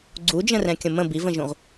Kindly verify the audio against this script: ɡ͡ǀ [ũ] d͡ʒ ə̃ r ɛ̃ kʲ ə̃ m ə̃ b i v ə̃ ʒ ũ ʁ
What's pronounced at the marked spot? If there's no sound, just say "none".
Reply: u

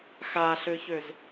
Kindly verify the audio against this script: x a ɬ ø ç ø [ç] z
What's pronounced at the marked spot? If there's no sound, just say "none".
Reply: none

